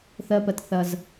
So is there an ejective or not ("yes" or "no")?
no